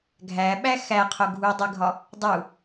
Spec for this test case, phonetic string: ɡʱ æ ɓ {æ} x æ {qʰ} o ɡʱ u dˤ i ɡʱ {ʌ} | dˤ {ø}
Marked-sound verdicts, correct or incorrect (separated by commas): correct, correct, incorrect, incorrect